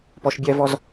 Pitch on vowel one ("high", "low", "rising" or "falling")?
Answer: low